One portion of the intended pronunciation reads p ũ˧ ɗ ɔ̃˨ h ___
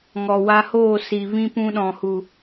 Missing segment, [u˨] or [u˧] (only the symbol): u˨